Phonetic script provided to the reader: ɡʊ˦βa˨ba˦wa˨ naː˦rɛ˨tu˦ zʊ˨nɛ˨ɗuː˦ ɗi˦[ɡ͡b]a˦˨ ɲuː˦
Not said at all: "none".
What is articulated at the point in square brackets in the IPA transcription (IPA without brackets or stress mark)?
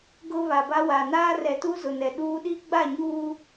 ɡ͡b